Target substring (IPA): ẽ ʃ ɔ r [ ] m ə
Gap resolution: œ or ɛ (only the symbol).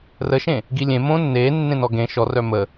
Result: œ